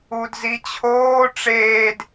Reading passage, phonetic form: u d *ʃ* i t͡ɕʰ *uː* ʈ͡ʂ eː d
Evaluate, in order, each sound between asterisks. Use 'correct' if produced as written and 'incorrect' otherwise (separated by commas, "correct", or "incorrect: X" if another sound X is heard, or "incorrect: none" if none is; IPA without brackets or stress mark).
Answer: incorrect: z, incorrect: oː